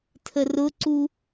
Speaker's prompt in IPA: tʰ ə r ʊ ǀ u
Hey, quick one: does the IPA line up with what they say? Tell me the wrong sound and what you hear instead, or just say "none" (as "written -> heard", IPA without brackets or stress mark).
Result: none